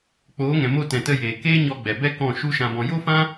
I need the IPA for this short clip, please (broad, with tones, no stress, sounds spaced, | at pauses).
k͡p oː˨˦ ŋ ɛ̃˨ m o˧ t ɛ̃˨ t ə˧ j eː˨ k eː˦ ɲ ɔ˧ ɡ͡b ɛ˨ b ɛ˦ k ɔ̃˦˨ ʃ u˦ ʃ ã˧ b ɔ̃˧ j o˦ f ã˦